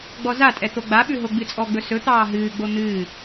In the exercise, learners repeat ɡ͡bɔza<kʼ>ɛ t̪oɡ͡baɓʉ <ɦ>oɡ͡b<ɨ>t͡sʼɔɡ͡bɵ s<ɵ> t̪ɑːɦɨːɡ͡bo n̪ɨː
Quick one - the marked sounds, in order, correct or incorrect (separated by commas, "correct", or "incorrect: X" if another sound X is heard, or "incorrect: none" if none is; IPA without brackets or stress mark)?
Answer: incorrect: tʼ, correct, correct, correct